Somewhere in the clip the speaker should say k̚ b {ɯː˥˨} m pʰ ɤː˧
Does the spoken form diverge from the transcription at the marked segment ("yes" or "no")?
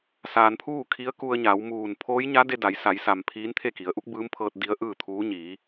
yes